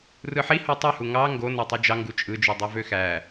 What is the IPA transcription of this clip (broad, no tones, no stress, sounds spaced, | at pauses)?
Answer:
r ɯ ħ i h o tˤ ø h u ŋ ɑ ŋ ɡ o n o tˤ u d͡ʒ ɑ ŋ ɡ u t͡ʃʼ ɯ d͡ʒ y dˤ e v ø x æ